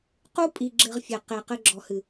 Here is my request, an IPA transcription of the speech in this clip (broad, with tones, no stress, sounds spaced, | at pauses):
q u˦ pʼ i˨ ɡ͡ǁ ɘ˨ ʁ fʲ ɘ˨ q e˨ q ɘ˦ ɡ͡ǁ ɔ˨ h ɨ˨